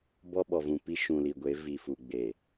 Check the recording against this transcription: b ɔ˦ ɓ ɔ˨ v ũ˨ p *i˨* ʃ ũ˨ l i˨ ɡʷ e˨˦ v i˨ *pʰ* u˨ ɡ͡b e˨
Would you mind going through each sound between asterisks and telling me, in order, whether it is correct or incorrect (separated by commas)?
incorrect, incorrect